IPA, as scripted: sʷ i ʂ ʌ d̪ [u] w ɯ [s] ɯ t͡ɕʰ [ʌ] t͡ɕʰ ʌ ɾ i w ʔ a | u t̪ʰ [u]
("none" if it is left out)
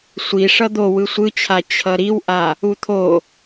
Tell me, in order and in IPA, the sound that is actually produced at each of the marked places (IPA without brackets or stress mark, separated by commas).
o, sʷ, a, o